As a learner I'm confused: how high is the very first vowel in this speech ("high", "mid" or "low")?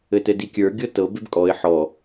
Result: mid